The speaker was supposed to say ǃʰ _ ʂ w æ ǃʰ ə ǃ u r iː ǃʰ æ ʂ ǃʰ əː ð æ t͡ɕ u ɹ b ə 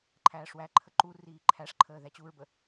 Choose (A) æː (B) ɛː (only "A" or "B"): A